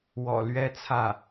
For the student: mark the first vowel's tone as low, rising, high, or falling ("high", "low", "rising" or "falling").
low